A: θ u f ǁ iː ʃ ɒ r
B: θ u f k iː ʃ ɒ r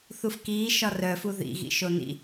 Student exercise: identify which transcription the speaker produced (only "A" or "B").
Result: B